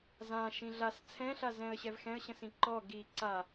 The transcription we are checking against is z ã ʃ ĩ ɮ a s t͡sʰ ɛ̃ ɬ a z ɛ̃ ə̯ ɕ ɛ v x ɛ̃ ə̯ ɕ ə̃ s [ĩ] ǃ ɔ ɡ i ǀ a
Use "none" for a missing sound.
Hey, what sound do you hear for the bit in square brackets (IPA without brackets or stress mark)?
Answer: ĩ